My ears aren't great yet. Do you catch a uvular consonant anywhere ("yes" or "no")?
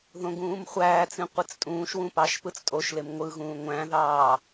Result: yes